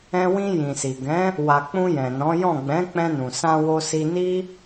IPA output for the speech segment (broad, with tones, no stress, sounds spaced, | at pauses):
ɛ̃˧ w ĩ˧ j ĩ˨ s i˨ ɡ ɛ̃˨˦ | w a˨ k͡p ũ˧ j ɛ̃˨ n ɔ̃˨˦ j ɔ̃˦˨ ɡ͡b ɛ̃˨˦ k͡p ɛ̃˧ n ũ˨ s ã˧ w o˧ s i˧ n i˦